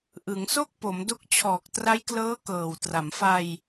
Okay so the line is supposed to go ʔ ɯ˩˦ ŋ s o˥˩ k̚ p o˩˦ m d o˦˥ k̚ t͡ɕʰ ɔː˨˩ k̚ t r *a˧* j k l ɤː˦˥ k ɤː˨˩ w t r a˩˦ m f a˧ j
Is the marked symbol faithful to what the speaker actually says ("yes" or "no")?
no